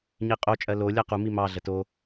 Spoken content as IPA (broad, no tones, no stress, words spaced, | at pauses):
ɲiqʼo t͡ʃʼɜlo lʲɜqu mimɑ ɮəto